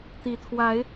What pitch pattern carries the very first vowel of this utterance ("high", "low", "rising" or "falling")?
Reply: low